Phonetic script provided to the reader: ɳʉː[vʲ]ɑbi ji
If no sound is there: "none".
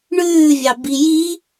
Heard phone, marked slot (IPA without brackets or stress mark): vʲ